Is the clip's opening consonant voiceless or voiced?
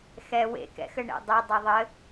voiceless